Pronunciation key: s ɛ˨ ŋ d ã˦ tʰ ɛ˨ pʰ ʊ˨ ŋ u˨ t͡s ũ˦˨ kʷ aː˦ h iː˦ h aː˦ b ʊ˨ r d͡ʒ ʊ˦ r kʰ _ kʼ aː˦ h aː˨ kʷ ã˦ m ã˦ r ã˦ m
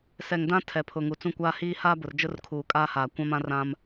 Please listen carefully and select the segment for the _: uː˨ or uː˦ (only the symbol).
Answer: uː˨